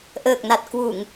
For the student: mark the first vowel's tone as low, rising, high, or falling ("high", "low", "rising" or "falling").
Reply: low